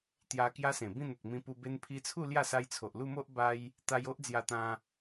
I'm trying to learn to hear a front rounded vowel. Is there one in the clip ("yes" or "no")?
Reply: no